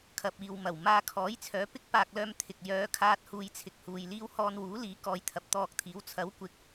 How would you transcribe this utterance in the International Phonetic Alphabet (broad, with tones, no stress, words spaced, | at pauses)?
kʰɐ˨p̚iː˨wmɐ˨˩w maː˧kʰɔː˨˥jt͡sʰœː˨˧ pɪ˥k̚paː˧k̚lœː˧m t̪ʰɪ˨k̚ jœː˨˧kʰaː˧t̚ huː˧jt͡sʰɪ˨k̚huː˨jliː˥w hɔː˧nwuː˨˥liː˨˥ kɔː˧jt̪ʰɐ˨˥p̚t̪ɔː˧k̚t̪ʰiː˨˥w t͡sʰɐ˨˥wkʷɪ˨˥k̚